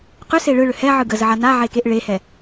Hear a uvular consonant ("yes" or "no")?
yes